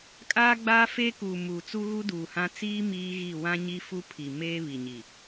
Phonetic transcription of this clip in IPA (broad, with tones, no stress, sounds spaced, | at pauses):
kʼ aː˦ ɡ͡b aː˦ f eː˦ k uː˨ m uː˨ t͡s u˦ ɣ u˦ d uː˨ h ã˦ t͡s iː˦ m iː˦ ɣ i˦˨ w ã˦ ɲ i˦ f u˦ pʰ i˨ m eː˦ β i˨ ɲ i˨